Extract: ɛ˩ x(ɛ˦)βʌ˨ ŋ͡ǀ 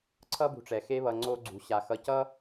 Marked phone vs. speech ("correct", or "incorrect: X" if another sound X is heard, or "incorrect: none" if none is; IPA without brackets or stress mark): incorrect: e˦